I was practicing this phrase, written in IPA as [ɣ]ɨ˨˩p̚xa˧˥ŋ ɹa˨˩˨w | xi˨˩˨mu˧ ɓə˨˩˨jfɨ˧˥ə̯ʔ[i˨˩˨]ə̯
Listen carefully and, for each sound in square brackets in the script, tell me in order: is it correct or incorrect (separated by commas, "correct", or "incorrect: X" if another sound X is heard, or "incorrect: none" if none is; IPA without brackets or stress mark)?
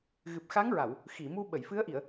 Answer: correct, correct